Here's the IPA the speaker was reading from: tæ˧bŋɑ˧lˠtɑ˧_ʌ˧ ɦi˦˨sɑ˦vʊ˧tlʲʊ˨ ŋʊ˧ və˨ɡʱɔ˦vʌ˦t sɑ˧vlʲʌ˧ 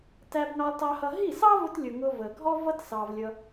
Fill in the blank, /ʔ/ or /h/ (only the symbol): h